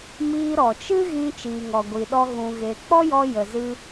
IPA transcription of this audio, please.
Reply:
m iː˧ ɾ ɔ˨ t͡ʃ ɨ˦ ɣ ĩ˧ t͡ʃ iː˨ ŋ ɔ˨ ɡʷ i˨ ɗ ɔ˧ ɣ ũ˨ ɣ e˨ k͡p ɔ˦ j ɔ˧ j ə˨ z ɨ˧

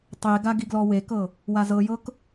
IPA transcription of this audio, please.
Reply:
tˤ e ɡ a ɡ i ɡ l ɔ w e k ɤ | w a z ɤ j ɤ k

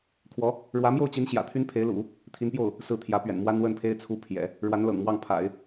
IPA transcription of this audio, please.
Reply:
kʰ w ɔ˧˥ | ɻ w ä˧˥ m j o˥˩ ʊ̯ t͡ɕ i˧˥ n ɕ j ä̰˨˩ t̪ʰ y˥ n pʰ e˧˥ ɪ̯ l ṵ˨˩˦ | t̪ʰ i˧˥ n p j o˥˩ ʊ̯ | s ɹ̩˥˩ t̪ʰ j ä˧˥ p ɥ ɛ̰˨˩ n m w a˥ n w ə˥˩ n pʰ e˥ ɪ̯ t͡sʰ u˥ pʰ j ɛ̰˨˩˦ | ɻ w a˧˥ n l ɤ̰˨˩ ŋ m w ɑ˥˩ ŋ pʰ a̰˨˩˦ ɪ̯

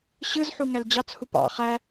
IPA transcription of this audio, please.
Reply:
ɕ ɯ z ħ u ŋ æ l d͡ʑ ɑ t͡s h u p ɑ̰ χ æ

